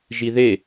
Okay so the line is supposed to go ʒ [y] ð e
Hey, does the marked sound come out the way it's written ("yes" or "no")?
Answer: no